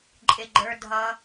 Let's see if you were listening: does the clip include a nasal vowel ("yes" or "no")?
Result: no